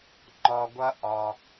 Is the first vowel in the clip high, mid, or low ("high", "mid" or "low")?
low